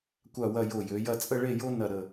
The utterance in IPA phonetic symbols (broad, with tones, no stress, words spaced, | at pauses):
kʷa˥˧wɐ˥˧ jo˧˩jø˩˧ jɐ˥˧ t͡sʼə˥˧ɭe˥˧jo˥nɐ˧˩ ɾə˧˩